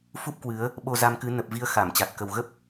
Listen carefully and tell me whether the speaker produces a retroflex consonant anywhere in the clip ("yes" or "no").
no